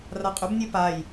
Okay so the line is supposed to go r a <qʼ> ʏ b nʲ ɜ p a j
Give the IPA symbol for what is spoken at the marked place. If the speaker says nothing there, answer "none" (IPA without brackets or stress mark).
qʼ